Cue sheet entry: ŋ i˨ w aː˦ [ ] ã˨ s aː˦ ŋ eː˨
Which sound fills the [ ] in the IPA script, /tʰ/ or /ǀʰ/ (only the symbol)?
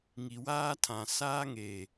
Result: tʰ